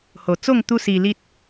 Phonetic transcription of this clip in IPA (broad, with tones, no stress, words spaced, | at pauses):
ho˨˩t͡so˥˧ŋ t̪u˦si˧li˦t̚